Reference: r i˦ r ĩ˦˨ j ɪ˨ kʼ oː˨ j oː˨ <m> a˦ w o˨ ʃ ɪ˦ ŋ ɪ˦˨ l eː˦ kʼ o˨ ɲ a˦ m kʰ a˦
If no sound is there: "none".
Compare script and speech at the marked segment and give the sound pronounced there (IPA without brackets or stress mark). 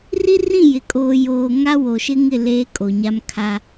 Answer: ŋ